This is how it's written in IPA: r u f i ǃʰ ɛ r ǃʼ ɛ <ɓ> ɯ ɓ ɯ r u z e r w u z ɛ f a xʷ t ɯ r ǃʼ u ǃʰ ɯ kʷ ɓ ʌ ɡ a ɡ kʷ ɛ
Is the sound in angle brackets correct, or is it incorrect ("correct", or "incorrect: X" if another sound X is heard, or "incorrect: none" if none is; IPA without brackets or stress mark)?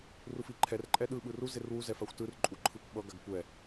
incorrect: ɗ